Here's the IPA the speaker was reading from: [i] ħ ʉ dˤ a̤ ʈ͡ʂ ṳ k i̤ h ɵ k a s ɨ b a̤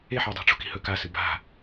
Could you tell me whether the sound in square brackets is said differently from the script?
yes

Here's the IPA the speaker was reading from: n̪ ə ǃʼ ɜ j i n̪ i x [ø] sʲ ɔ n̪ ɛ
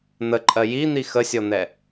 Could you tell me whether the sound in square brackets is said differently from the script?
yes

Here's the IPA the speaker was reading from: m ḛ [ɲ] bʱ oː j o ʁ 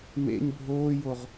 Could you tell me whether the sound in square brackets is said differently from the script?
no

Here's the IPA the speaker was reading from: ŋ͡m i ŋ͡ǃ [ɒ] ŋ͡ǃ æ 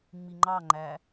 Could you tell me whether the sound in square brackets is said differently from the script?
yes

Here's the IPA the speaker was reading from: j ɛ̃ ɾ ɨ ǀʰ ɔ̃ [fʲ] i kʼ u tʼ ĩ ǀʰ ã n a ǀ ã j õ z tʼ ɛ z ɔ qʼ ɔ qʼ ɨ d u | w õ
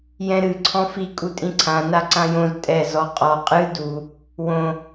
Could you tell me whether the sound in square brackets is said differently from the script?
yes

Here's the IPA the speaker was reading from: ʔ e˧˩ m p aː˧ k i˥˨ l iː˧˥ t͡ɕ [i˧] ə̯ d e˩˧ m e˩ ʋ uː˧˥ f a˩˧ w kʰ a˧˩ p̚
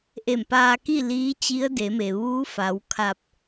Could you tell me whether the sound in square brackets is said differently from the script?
yes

